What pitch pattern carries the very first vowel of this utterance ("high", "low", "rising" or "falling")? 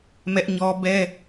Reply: high